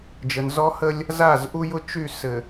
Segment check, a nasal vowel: absent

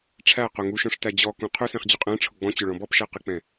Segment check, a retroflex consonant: present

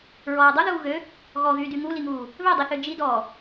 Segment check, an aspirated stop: absent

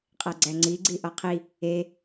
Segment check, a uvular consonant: present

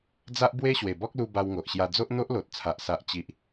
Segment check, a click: absent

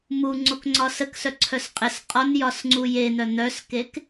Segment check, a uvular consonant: present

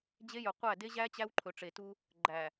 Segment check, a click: present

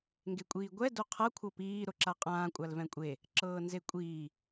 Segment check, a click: present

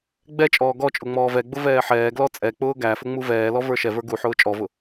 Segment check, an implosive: absent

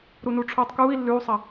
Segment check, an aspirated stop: present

